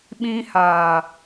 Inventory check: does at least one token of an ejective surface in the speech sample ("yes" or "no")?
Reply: no